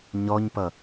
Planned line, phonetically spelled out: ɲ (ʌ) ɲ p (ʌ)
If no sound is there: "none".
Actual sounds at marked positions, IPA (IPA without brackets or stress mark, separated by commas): ɔ, ʌ